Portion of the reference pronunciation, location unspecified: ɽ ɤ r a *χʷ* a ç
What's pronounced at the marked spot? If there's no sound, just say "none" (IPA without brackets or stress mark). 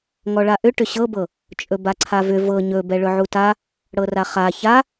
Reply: χ